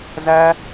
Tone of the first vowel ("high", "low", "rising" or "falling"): high